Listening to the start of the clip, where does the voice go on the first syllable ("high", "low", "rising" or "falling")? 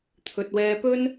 low